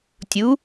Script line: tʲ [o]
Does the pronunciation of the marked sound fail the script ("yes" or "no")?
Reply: yes